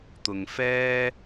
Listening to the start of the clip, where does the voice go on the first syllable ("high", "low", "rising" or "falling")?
low